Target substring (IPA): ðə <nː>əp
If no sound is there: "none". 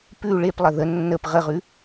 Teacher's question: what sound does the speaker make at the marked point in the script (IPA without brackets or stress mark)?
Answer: nː